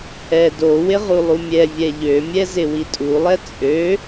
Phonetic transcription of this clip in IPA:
h ɛ d o w ɪ ʁ u lˠ u mʲ ɛ vʲ ɛ ʎ ø mʲ ɛ z ɪ w i tʼ u lˠ ɛ t͡sʼ ø

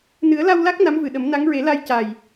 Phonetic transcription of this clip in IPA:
n ɨ˨˩˦ ə̯ l a˧ w l a˦˥ k̚ n a˧˥ m v ɨ˨˩ ɗ ə˨˩˦ m n a˧˥ ŋ ɹ e˨˩˦ l a˧ j c a˨˩ j

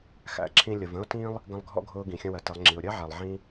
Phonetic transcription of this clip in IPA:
x æ̰˩˧ ǁʰ ĩ˧ lʲ ə˩ v ə̃˥ ʊ̯ t ĩ˥ lˠ | ɡ ə̃˧ lˠ ɡʱ ɔ̰˧˥ ɡʱ ʊː˧ ɡ ĩ˩ xʲ ə̃˧ w ɜ˩ t ɪ˩˧ lˠ ŋ͡ǁ i˩ ʊ̯ ɾʲ ɜ˥ ʕ ɛ˩ lˠ ʕ ĩ˧

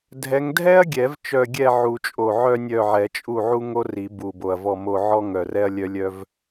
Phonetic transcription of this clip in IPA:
dʱ ɛ˨˦ ŋ dʱ ɛ˥ ɐ̯ ɡʲ ɛ˨˩˦ v t͡ʃ œ˦˨ ɡʲ ɛ˦˨ ʕ u˨˩ t͡ʃʼ o˨˩ ʕ œ˥ nʲ œ˦˨ ʕ ɛ˨˩˦ t͡ʃʼ u˦˨ ʕ u˥ ŋ o˥ r i˨˩˦ b u˨˩ b o˨˩ ɐ̯ v ɔ˦˨ m o˦˨ ʕ ɔ˥ ŋ œ˨˩ r ɛ˥ ɐ̯ lʲ œ˥ lʲ œ˥ v

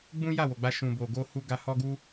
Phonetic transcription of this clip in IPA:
ɡ͡b ũ˦ j a˦˨ w o˨ ɡ͡b a˧ ʃ ũ˨ b o˨ ɡ o˧ h u˧ ɡ a˧ h ɔ˦ ɡ u˦

